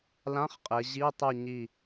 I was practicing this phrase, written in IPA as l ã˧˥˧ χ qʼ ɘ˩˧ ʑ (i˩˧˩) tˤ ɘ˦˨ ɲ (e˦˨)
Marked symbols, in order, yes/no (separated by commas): no, no